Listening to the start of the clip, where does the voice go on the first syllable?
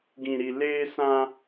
low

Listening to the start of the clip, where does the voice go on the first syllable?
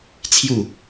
falling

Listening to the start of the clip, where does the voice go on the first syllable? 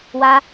high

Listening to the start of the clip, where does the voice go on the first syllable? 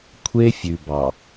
high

